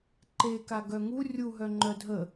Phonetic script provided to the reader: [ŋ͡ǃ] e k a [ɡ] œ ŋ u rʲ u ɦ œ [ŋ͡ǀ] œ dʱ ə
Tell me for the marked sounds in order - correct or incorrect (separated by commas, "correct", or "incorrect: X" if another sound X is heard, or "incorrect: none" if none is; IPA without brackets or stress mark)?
incorrect: ǃ, correct, incorrect: ŋ͡ǃ